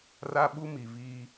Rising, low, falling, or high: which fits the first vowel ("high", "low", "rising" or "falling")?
high